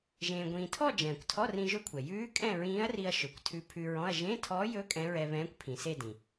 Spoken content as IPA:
ʒ ẽː˧ ɡʷ ĩː˧ tʰ ɔ˥˧ d͡ʒ ɛ̃ː˩ kʷ tʰ ɔ˧˥˧ r ĩ˧ ʒ ɵ˧˥ kʷʰ ɛ˩ j ʉː˧˥ kʼ ɛ̃˥˧ ɹ ĩː˧˥ ɐ̯ r i˧ ɐ̯ ʃ ɵ˩˧ kʷ tʰ ʉ˧˥ pʰ ʉ˧ ɹ ɔ̃˧˥˧ ɐ̯ ʒ ẽ˧˥˧ tʰ ɔ˧˥ j ɵ˧˥ kʼ ɛ̃˧˥ ɹ ɛ˧ β ɛ̃ː˧˥ kʷ pʰ ĩ˩ s e˥˧ d ĩ˩

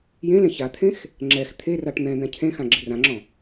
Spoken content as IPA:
j ẽ l ẽ ç a t̪ʰ ẽ x | ŋ͡ǁ ɛ x t̪ʰ e r a ʈ n̪ ɛ̃ n̪ ɛ̃ cʰ ẽ x ã ɡ͡ǁ ɪ r ã ŋ͡ǁ ɔ̃

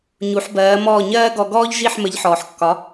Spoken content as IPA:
ɲ u˩˥ ħ b ɜː˩˥ m ɔː˥˩ ɲ ɜː˥ ɡ ɔ˧ ɡ ɔː˥ ʎ ʒ i˥˩ ħ m ə˩˥ ʎ ħ ɔː˩ ħ kː ɒ˩˥

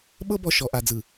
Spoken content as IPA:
ɓ ɤ˦ b ɔ˨ ʃ ɔ˨ ʔ a˨ d͡z ɯ˨

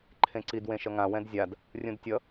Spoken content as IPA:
ǃʰ ẽ ǀ i d w ẽ ʃ ʌ ŋ ã w ɛ̃ d zʲ a d | rʲ ũ d tʲ ʌ

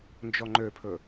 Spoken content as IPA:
n d͡ʒ ɔ ŋ͡ǃ ø pʰ ɵ

